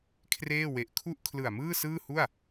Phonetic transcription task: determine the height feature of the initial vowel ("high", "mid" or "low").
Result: mid